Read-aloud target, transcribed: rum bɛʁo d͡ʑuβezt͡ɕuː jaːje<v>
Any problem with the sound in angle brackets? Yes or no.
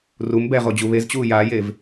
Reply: no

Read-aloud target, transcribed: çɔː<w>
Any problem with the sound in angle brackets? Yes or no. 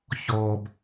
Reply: yes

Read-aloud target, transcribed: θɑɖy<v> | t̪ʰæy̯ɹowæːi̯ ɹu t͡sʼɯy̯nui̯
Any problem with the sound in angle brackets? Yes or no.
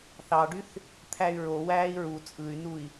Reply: yes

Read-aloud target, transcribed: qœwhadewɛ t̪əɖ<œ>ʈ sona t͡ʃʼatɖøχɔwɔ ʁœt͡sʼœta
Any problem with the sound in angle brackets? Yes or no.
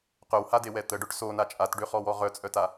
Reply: no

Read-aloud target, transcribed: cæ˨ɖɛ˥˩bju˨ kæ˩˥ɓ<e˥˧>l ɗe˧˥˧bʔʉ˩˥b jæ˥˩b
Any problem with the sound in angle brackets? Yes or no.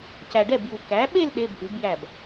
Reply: no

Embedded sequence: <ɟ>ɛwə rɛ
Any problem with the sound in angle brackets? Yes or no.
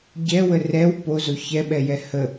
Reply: no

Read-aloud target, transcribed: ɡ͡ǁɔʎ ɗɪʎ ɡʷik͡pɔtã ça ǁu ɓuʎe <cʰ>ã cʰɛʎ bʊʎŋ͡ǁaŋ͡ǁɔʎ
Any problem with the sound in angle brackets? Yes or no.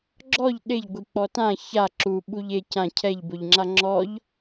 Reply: yes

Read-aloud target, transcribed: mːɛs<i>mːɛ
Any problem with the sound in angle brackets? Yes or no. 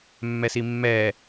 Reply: no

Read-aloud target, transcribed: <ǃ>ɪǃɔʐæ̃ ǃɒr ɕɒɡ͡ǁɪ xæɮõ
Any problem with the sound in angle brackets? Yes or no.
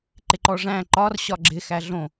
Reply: no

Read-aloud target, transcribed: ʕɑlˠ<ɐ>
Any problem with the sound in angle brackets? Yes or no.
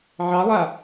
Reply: yes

